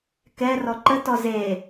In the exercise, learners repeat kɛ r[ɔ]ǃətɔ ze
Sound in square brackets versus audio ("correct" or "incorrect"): correct